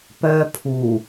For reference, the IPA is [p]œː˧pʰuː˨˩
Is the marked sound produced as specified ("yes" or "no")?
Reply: yes